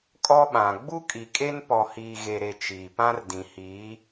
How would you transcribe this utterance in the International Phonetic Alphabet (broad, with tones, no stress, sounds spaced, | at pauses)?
kʼ ɔ˦ ɓ ã˨ ɡ͡b u˦ kʼ i˨ kʼ e˦ n p ɔ˨ h iː˨ ɣ e˨ ɾ e˨ t͡ʃ iː˨ p ã˦ r d ĩ˨ h iː˨˦